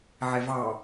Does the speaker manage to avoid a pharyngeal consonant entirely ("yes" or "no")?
no